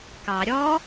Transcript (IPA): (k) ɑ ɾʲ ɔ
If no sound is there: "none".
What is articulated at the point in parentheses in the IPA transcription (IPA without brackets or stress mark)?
k